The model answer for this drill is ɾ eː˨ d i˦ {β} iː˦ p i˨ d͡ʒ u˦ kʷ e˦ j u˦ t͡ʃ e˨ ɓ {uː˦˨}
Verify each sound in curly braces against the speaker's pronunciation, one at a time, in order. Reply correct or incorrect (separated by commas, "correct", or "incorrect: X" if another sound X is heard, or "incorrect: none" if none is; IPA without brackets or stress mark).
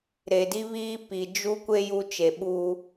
correct, incorrect: uː˦